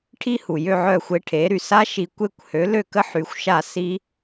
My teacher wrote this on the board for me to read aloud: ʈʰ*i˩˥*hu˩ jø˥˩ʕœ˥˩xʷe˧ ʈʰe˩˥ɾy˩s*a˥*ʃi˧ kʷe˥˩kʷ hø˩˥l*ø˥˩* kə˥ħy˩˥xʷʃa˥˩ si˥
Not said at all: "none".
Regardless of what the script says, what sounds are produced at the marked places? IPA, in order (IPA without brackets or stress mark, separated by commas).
i˧, a˥, ø˥˩